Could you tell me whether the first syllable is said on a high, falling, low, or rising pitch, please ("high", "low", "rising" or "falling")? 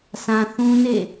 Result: low